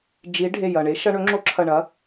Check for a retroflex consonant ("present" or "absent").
present